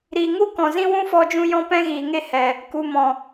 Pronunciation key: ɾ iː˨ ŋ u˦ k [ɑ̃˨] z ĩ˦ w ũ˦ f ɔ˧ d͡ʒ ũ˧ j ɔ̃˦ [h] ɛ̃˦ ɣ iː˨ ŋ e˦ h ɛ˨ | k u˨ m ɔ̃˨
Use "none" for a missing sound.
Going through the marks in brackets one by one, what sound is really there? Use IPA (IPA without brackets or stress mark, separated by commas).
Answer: ɔ̃˨, p